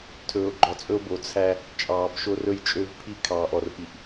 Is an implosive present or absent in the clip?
absent